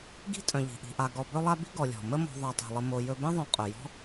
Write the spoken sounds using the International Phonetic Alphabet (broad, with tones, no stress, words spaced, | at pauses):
ɡi̤˥ tʼœ̃˨ʎi̤˩ʔi̤˨ʔa˨ ɡɔ˨ bɵ˦lˠa˦ bi̤˥ ɡɔ˨lʲɔ̤˩ mə˦ mɔ̤˨ ðˤa˨tˤi̤˩lˠə˨ mo˨ jɵ˨bẽ˦ðˤœ̃˨ qʼœ˩jɔ̤˥